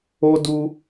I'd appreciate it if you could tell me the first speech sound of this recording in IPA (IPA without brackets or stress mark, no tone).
o